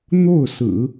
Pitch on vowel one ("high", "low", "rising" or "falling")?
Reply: falling